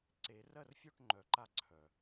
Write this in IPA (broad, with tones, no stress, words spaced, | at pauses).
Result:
ǀe˨˩˦ rɜ˦˨rfʲo˦˨ʈ ŋ͡ǃœ˨˩˦ǃa˦˨ ǀʰœ˩